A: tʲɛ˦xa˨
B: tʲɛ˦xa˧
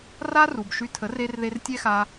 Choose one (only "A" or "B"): B